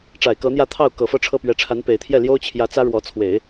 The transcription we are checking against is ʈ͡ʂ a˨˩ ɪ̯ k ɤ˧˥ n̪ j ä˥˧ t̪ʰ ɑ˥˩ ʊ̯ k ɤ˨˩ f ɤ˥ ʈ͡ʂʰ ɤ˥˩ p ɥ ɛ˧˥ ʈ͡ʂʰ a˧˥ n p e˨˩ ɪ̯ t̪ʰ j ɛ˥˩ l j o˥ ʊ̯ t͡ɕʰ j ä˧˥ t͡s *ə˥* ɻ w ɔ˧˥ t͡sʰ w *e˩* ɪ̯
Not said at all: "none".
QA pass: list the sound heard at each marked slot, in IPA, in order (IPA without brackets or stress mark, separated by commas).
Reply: ä˥, e˨˩˦